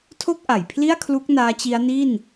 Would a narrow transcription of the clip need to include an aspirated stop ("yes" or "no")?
yes